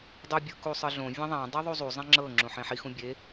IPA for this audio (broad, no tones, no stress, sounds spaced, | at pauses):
dˤ u bʲ ɯ k u sˤ ɯ ɮ õ vʲ ẽ ðˤ ã dˤ ɛ ðˤ u zˤ u zˤ ẽ ŋ͡ǁ ɤ ŋ͡ǁ ũ ħ ẽ ħ i x ũ bʲ e